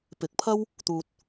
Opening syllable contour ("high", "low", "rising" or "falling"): rising